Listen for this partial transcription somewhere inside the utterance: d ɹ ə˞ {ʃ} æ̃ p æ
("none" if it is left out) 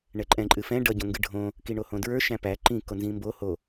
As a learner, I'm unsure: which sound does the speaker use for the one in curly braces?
ʃ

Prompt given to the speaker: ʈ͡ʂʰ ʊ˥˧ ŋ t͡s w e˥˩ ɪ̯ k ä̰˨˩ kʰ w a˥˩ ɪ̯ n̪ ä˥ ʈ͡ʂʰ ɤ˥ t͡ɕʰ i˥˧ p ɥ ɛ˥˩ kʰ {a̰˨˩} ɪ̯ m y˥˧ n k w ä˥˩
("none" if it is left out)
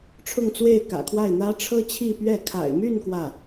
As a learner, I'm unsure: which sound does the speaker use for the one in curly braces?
a̰˨˩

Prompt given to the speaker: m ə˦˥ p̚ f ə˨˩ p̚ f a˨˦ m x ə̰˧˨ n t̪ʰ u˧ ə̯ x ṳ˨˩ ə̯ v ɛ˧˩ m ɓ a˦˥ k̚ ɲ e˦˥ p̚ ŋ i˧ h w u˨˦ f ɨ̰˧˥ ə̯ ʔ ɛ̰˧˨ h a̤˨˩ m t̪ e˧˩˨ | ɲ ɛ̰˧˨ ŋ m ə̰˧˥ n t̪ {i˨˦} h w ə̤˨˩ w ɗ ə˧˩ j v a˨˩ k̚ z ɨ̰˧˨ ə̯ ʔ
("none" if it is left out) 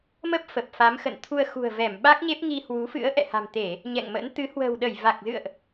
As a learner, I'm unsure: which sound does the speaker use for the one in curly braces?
ɨ˨˦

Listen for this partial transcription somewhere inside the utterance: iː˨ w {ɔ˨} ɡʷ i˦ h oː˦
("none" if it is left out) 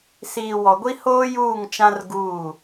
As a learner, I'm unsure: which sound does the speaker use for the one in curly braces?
ɔ˨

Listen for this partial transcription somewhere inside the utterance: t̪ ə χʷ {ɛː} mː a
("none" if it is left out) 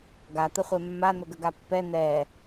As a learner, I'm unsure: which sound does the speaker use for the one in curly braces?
ɛ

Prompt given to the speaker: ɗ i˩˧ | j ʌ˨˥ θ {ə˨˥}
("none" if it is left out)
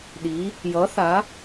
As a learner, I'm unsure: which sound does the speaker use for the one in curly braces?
a˨˥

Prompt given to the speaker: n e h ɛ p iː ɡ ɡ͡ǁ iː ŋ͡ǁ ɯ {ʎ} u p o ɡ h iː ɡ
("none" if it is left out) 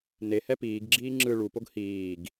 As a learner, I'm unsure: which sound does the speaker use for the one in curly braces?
ɭ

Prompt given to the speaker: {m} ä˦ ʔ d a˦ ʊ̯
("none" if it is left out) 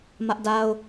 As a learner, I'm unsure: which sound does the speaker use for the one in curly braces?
m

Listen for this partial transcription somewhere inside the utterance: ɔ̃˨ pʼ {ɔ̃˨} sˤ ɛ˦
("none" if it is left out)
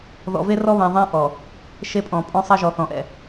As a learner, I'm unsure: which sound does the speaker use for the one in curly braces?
ɔ̃˦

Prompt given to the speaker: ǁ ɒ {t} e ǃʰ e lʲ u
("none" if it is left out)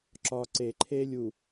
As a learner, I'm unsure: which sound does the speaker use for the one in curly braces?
ǀ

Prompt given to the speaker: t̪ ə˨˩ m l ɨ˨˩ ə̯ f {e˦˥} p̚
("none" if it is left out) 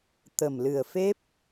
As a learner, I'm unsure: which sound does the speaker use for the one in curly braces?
e˦˥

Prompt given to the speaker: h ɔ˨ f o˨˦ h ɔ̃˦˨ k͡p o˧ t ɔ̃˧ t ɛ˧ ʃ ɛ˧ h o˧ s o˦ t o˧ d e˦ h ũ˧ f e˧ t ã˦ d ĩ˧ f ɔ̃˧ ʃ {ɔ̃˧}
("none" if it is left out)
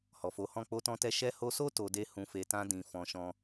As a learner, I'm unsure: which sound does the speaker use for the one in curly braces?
ɔ̃˧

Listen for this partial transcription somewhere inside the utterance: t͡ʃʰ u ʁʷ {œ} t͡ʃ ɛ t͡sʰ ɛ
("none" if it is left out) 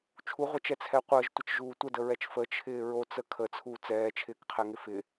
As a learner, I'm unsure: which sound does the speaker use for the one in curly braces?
ə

